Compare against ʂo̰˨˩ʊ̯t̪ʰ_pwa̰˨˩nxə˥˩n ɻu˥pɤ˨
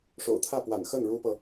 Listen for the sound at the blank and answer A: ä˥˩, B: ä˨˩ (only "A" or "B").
A